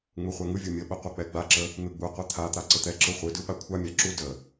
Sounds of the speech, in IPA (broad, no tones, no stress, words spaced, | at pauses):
ŋ͡muχʷɛŋɯvʲu mʲəɓə qʷœk͡pɛɡ͡baǁə | n̪ɯɡ͡buqʷɛ t̪ʰat̪a ǀət̪ɛǁɯ χʷɯdɯ ɓakʷʰamʲa ǁu də